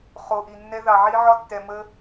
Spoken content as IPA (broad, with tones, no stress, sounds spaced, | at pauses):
χ o˨ ʔ i˨ nː ɛ˧ ð ɑ˨ ʕ i˧ ʕ ɒ˧ tː ɛ˨ m ə˧